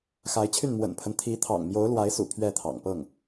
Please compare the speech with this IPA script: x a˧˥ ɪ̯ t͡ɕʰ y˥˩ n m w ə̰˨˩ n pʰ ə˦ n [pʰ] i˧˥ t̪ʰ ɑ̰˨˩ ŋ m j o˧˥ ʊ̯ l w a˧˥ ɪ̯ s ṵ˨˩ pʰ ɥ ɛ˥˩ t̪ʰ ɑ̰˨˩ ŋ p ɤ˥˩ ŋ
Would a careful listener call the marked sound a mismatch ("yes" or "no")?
yes